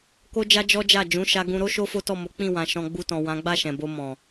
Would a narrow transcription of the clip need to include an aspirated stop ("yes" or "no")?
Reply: no